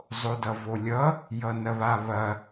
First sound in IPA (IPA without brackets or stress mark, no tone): zˤ